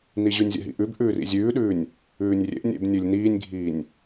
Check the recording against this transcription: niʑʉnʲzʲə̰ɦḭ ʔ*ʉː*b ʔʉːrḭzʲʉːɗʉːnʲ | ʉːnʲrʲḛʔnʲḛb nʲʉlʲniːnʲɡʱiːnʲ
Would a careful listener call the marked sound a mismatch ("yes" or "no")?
yes